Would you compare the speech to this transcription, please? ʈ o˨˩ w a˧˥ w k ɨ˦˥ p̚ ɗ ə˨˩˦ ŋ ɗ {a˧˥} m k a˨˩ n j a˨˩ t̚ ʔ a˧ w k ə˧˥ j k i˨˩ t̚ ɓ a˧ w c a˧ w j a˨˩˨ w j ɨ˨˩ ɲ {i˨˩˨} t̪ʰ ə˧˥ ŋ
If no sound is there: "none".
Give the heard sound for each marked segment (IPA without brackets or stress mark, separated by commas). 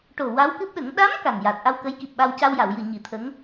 a˧˥, i˨˩˦